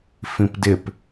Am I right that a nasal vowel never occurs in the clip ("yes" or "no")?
no